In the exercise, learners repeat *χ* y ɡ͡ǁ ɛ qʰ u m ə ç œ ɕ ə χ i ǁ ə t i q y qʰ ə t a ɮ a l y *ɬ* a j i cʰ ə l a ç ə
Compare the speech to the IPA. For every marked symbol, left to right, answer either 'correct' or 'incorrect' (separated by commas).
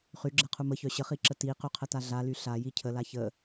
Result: correct, correct